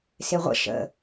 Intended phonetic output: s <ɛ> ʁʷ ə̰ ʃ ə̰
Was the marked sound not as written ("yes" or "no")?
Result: yes